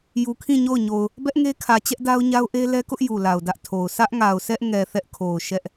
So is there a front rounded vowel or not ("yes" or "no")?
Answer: no